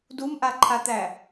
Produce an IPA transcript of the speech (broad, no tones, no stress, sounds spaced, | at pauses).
d u m ʔ a ǃʰ a t̪ æ